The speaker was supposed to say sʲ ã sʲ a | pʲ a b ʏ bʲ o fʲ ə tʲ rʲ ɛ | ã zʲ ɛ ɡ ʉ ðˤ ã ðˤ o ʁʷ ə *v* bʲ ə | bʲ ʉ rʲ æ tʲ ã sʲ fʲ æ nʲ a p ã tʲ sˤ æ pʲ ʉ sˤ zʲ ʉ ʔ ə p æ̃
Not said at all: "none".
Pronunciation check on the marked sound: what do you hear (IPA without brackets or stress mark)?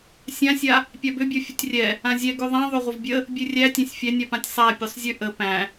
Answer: v